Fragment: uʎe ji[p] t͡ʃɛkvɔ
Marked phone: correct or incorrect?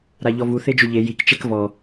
incorrect